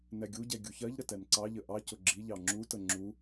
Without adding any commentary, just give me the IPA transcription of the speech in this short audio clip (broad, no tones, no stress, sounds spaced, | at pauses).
n ɛ ɡʲ u ɟ ɛ ɡʲ u ç ɜ ʎ ɾ ə t ɛ n ǀ ɑ ʎ ə ʔ ɑ c ʊ ɡ͡ǁ i ʎ ɑ ŋ͡ǁ u t ə ŋ͡ǁ u